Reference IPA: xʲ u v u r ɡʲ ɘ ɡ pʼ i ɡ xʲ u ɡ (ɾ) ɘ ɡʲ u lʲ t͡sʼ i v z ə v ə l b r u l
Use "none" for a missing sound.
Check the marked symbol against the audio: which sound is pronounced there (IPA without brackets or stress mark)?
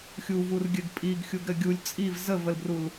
ɾ